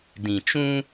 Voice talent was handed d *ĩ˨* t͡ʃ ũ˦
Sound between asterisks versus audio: correct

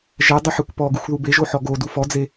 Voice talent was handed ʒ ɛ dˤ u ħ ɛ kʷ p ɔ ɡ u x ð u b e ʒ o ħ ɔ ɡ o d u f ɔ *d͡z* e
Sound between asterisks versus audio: correct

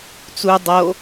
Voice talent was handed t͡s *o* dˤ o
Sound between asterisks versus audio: incorrect: u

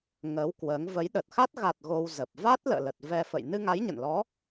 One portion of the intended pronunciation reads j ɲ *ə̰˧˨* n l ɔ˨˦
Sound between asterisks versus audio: correct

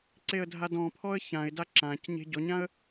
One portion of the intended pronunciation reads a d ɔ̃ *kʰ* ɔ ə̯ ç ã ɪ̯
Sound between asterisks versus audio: incorrect: pʰ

